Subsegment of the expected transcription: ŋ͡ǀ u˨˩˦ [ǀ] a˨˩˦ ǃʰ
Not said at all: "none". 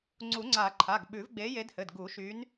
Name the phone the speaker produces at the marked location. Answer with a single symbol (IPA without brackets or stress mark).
ŋ͡ǀ